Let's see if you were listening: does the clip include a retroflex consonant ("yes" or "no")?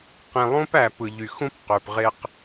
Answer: no